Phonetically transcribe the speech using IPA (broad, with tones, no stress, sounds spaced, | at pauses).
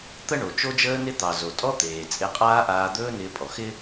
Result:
t̪ ə˥ ɳ o˩ t͡ʃ o˥ d͡ʒ əː˥ n ɪ˥ t̪ ɑ˩ z o˩ tʼ ɔ˥ t̪ eː˩ t͡sʼ e˧ qʼ aː˥ ʔ aː˧ d̪ ɵː˥ n ɪː˧ pʼ ɔ˩ x ɪ˥